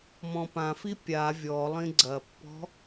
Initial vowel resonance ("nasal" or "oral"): nasal